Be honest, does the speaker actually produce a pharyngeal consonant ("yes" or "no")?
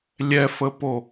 no